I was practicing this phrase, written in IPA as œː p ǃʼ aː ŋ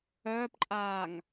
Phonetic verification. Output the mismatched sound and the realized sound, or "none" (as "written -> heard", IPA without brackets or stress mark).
none